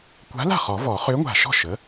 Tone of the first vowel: rising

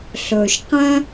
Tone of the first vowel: low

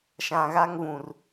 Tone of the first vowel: low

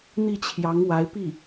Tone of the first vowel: falling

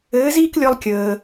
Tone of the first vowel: rising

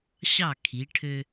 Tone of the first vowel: falling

